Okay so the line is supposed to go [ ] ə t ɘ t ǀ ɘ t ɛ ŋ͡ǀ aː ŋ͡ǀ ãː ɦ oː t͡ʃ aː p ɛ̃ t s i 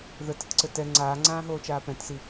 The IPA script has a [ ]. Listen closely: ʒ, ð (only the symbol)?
ð